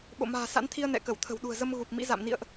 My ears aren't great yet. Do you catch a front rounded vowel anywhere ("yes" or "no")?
no